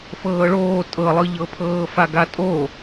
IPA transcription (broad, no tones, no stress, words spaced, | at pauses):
fɤːɭoː tʼɤlˠɯʎɤpʰɤː faɡatʼo